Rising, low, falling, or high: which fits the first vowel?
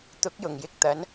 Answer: rising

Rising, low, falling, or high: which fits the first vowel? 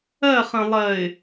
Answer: falling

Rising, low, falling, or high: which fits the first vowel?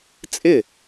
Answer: falling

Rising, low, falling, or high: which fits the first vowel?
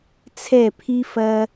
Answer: falling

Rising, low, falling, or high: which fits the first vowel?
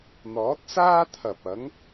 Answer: rising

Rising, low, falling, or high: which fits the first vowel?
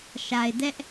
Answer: low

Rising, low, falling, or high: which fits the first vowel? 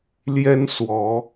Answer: high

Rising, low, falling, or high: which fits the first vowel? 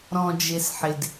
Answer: low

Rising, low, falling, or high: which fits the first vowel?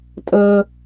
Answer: low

